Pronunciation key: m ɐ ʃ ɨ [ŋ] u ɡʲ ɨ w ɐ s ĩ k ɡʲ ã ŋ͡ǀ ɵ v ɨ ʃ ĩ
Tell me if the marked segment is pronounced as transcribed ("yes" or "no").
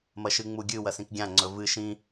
no